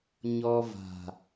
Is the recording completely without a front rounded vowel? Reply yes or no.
yes